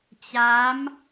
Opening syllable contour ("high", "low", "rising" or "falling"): rising